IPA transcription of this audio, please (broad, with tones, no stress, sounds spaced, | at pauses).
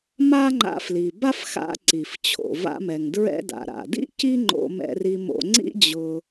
m a˥ ŋ͡ǃ a̰˧ f l i˩ b a˥ f x a̰˧ ǀ i˩ f t͡ɕʰ o̰˩ v a̰˧ m ɛ˩ ŋ d ɹ ɛ̰˧ d a̰˩ ɾ a̰˩ d ḭ˥ c i˥ ŋ͡ǃ o̰˧ m ɛ̰˧ r i˧ m o̰˧ ŋ͡ǀ ḭ˥ d͡ʑ ʊ˧